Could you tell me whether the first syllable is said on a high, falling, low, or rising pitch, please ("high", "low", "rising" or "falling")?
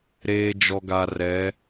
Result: low